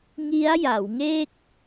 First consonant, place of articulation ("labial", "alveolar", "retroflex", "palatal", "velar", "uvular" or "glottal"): velar